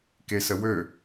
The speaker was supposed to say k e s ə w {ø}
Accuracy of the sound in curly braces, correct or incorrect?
correct